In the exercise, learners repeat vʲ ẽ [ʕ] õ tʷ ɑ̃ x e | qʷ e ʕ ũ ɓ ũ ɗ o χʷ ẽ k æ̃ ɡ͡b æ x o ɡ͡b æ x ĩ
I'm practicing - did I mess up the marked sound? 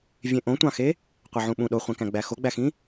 yes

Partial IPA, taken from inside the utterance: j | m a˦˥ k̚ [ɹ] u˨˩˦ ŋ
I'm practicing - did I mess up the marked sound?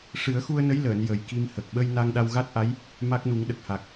yes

